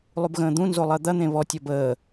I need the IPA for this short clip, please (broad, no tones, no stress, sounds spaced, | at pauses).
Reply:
lˠ u b ɣ ə̃ː d̪ ũ n z o lˠ ɜ d̪ ɐ n̪ ẽ β ɔ tʲ ɔ b əː